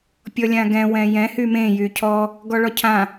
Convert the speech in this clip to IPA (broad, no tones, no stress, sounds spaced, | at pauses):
pʲ ɔ lʲ ã ɡ ɛ̃ w ɛ̃ j ɛ̃ h y m ẽ j y cʰ ɔ | ɡ ɔ ɭ ɔ cʰ ã